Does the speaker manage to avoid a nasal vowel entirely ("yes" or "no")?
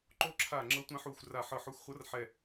no